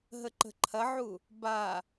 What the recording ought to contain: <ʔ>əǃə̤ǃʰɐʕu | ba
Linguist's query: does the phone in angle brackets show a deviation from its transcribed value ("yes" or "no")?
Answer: yes